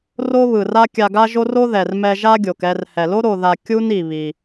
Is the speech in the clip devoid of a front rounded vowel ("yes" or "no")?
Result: yes